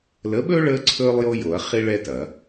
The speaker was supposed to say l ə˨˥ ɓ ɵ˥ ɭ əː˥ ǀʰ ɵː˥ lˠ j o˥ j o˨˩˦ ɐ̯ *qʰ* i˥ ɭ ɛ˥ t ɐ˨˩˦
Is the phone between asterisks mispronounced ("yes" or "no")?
yes